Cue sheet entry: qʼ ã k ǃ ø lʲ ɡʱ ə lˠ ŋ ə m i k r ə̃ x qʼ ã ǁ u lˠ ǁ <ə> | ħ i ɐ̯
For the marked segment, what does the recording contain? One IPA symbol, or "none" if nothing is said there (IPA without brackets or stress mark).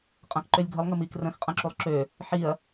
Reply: ø